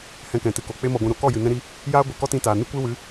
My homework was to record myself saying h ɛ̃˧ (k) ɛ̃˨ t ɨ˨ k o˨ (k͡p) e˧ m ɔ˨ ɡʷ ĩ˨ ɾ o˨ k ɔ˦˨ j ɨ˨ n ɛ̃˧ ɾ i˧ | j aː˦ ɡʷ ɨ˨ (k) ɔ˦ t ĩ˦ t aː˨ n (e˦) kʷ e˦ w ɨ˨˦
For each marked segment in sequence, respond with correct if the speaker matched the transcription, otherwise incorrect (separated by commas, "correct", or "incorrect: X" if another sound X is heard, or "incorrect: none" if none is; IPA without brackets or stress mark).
correct, correct, correct, incorrect: ɨ˦